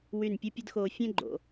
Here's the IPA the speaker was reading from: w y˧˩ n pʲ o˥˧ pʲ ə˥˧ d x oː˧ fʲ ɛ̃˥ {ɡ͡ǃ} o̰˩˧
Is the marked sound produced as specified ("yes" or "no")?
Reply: yes